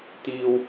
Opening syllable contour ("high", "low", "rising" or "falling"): low